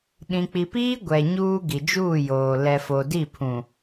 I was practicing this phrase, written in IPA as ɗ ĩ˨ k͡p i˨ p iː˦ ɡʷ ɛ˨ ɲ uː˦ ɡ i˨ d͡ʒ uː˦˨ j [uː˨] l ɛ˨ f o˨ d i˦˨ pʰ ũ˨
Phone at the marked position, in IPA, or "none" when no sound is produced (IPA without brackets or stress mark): oː˨